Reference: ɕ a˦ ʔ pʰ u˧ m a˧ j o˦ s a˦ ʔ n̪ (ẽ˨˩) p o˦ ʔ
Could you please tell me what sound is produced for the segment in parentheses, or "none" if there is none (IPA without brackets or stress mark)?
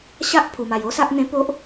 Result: ẽ˦